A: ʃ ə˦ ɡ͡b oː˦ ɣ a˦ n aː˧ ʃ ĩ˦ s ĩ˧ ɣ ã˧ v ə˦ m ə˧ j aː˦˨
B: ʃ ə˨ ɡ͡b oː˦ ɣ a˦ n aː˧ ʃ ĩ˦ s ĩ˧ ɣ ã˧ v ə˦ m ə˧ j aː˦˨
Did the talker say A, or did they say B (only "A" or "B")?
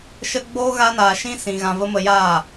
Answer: A